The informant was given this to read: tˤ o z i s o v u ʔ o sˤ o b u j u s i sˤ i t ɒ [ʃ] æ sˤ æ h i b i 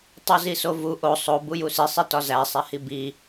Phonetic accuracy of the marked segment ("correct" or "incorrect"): incorrect